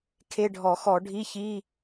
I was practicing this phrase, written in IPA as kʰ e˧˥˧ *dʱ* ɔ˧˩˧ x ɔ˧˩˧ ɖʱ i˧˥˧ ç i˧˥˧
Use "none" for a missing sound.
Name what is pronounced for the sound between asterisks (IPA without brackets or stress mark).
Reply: ɖʱ